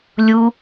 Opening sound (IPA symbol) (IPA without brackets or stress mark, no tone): lʲ